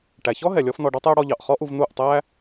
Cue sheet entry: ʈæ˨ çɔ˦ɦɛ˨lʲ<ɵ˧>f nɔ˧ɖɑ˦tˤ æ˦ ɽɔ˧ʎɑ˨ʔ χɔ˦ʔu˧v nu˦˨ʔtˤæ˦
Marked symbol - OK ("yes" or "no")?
no